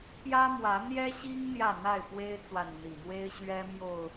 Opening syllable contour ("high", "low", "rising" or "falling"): high